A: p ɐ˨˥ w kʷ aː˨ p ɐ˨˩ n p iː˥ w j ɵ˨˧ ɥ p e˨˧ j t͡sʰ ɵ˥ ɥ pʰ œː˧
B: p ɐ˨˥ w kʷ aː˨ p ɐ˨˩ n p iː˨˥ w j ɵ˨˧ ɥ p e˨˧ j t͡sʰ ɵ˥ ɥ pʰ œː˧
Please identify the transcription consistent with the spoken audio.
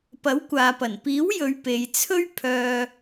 B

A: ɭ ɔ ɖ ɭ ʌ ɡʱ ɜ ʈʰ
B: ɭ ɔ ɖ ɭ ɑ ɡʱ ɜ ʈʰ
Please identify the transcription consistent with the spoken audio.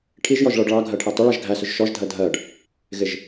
B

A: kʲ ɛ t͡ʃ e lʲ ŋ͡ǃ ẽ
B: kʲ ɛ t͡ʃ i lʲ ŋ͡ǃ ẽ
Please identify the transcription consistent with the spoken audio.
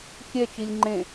B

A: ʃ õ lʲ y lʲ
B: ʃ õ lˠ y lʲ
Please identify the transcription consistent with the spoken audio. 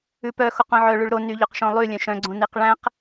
B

